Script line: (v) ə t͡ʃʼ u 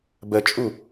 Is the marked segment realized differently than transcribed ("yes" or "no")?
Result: yes